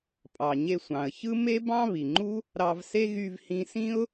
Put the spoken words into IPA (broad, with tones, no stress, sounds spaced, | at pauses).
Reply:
pʼ ɑ˩ ɲ e˧ sʷ ɑ̃˩ ə̯ ç ɯ˥ m e˥ b ɑ̃˥ β i˩ ŋ͡ǃ u˥ | ɾ ɑ˧ v s e˥ ɣ y˧ v h ĩ˧ s ĩ˥ ʊ̯